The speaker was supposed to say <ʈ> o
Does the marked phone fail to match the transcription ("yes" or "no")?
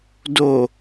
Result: yes